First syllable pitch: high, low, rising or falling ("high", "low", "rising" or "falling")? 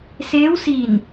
rising